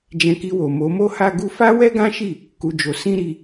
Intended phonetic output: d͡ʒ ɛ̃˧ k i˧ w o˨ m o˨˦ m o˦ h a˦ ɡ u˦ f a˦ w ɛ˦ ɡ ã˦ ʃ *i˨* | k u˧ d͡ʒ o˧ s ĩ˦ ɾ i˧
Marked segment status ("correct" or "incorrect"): incorrect